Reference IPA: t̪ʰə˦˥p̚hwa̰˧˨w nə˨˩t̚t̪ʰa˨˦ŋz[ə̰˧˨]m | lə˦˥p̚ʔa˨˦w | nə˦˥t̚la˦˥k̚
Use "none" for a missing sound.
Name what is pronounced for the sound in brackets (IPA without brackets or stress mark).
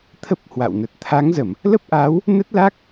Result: ə˧˩˨